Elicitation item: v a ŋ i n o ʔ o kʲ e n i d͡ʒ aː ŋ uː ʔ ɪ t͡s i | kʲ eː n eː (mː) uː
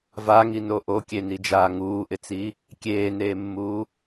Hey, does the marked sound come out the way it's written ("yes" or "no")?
yes